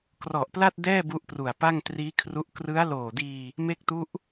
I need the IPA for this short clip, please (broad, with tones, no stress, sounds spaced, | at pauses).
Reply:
k r ɔ˨˩ ʔ p l a˥˩ t̚ d ɛː˥˩ b u˦˥ ʔ p r u˨˩ a̯ p a˥˩ ŋ t r iː˦˥ kʰ r u˦˥ ʔ k r ɯ˦˥ a̯ l oː˨˩ d iː˧ | m e˦˥ k̚ t u˦˥ ʔ